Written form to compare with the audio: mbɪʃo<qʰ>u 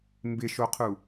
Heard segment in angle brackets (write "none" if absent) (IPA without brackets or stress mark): qʰ